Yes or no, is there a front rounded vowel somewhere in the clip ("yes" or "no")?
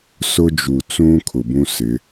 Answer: no